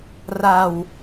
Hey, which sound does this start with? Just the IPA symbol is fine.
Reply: r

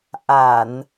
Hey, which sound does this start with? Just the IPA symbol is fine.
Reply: ʔ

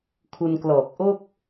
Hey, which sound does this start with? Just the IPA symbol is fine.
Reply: kʰ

